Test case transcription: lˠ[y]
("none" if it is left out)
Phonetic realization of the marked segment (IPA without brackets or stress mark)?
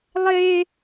e